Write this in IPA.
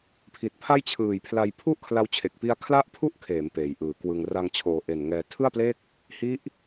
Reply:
pʰi˨˩t̚pʰa˥˩jt͡ɕʰɯː˨˩jpʰla˧j pʰu˥˩ʔkʰla˧wt͡ɕʰe˨˩k̚pi˦˥a̯ kʰla˥˩ʔpʰu˥˩ʔkʰeː˩˦m peː˩˦jʔɯː˩˦kwɯ˧ŋ ra˧ŋt͡ɕʰoː˨˩ʔe˨˩n ŋɛː˧ tʰɯ˥˩a̯ple˥˩k̚ | hi˦˥ʔ

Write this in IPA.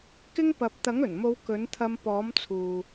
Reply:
kɪ˥ŋpɐ˨˥p̚ t̪ɐ˨˥ŋɵ˨˩nmo˨˧w kɵ˨˥nt̪ʰɐ˧m pɔː˨˥mt͡sʰuː˨

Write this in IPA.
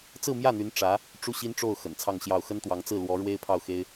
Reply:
t͡sɹ̩˥˧mjä˥˩n̪y˧˥n ʈ͡ʂä˧˥ | ʈ͡ʂu˥˩ɕi˥nʈ͡ʂo˥˩ʊ̯ xə̰˨˩nt͡sʰɑ˥˧ŋɕjɑ˥˩ʊ̯ xə˥nt̪wɑ˧˥ŋ t͡sɹ̩˥˩ lwɔ˧˥ ɻwe˥ɪ̯pʰɑ˥˩ʊ̯xe˥ɪ̯

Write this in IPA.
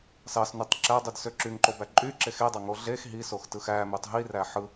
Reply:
sɑsnytˤ ǁædˤyd søǁyŋǃobæ ǃʼyǁex edˤɑŋo ɮex ɦisox tɯxæmytˤ ɦiræ ħɯ

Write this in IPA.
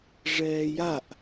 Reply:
ʐɛːjaʔ

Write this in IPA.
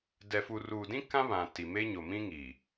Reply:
dɛ˨fu˨ruː˨dĩ˦ kã˦βã˨ ti˨ me˦ ɲo˨ mĩ˦ŋi˨

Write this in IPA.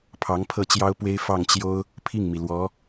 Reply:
pʰɑ˧˥ŋpʰɤ˥˩t͡ɕjɑ˥ʊ̯pwe˥ɪ̯ fɑ˥˩ŋt͡ɕjo˥ʊ̯ | pʰi˥˩ŋmi˩lwɔ˧˥

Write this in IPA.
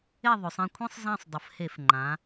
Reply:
e˦˨ðˤø˩˧sˤẽ˦˨kʷʰẽ˦˥sˤ zã˦˨sˤ dˤə˩˧fhe˧˩˧f ŋ͡ǃã˩˧

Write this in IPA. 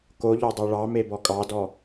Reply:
koʎɔdˤo ɭɑ mebɔkʼɑdɔ

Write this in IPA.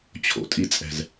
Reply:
t͡ɕʰo̰tʼit͡sʼɛ̤z

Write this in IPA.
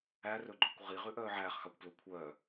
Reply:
ærɵɡ͡ǃɵkʷ ʁiʁʉʔœː ʕæːχxɑkʷplɵ kʷʰœː

